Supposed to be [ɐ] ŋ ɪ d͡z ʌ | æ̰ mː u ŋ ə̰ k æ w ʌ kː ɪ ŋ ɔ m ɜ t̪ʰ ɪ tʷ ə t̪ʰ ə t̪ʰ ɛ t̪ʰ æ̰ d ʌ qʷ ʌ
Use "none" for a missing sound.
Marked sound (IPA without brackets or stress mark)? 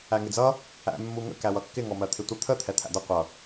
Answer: æ